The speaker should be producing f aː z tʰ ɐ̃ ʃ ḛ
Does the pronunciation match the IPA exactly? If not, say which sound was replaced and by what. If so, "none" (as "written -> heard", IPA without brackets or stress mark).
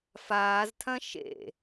none